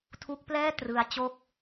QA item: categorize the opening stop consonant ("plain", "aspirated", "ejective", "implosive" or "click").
aspirated